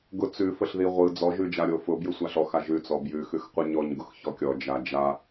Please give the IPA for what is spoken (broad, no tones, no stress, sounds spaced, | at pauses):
ɡ ʊ t͡s ʉ f ə ɬ ð i ʁʷ ɯ d͡z ɔ ʒ ʉ d͡ʒ a ɾʲ o f ʊ b j ɯ sʷ a ɬ ɔ x a ʒ ʉ t͡s ɔ b j ʉ x ʉ x qʷ ɯ ɲ ɔ ɲ ɡ ʊ x ç ɔ kʲ ɔ d͡ʒ a d͡ʒ a